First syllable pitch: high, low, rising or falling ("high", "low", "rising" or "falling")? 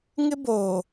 high